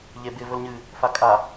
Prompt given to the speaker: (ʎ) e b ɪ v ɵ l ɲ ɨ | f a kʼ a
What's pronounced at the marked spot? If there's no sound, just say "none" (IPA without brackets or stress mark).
ʎ